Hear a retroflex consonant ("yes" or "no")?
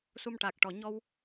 yes